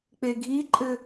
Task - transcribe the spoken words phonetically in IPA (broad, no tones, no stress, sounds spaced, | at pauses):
k͡p e ɡʱ i ǃʼ ɘ